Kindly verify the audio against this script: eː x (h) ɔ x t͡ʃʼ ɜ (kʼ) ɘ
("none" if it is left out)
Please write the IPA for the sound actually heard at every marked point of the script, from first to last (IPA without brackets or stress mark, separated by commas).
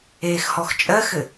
h, x